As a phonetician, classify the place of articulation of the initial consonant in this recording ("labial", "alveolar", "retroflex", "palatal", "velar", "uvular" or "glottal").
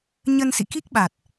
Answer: palatal